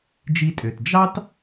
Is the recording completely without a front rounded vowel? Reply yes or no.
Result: no